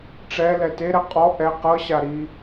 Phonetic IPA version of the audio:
ʈ͡ʂɛlɛ teɾɛ qʼɔ ʔɛ qɤɕa ɾi

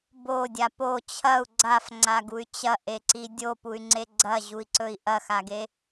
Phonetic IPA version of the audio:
bodʲa po t͡ɕʰɐu̯ ɡ͡ǀafŋ͡ǀaɡuy̯ t͡ɕɐʔeǀi dʲopuy̯ŋ͡ǀe ɡ͡ǀɐʑui̯ǀɵi̯ ʔɐxaɡe

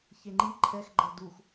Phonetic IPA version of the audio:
çeŋ͡ǃi ǃʰɛxɡ͡ǃɐd ux

